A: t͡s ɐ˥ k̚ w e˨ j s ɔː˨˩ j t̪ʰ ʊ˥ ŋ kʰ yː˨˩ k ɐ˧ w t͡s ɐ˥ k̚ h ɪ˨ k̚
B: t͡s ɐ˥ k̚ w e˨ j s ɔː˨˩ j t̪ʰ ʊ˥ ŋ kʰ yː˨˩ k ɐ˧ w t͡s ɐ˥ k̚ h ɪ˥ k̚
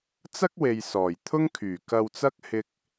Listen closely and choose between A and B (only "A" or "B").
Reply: B